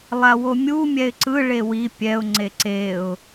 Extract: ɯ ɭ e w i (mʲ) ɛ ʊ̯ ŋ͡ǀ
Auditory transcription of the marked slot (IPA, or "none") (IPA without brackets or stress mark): pʲ